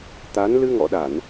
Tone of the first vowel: rising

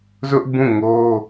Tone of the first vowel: high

